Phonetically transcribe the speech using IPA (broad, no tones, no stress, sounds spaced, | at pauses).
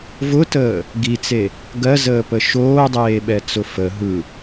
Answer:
v ʊ t əː | ɡ i t͡s e | ɡ ɜ z əː p ə ʃ oː dˤ eː ɓ ɛ t͡s ʊ f ə ɦ ɯ